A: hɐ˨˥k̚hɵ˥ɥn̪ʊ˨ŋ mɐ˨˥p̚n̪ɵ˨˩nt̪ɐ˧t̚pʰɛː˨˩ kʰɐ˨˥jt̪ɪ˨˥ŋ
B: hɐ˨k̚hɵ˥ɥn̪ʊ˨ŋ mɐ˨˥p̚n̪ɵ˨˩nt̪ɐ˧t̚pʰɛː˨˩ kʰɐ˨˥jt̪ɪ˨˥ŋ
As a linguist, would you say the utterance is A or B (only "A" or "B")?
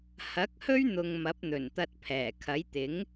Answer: A